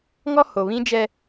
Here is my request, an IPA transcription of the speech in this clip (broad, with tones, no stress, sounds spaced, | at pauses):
ŋ ɔ˦ h o˨ β ĩ˦ d͡ʒ ɛ˦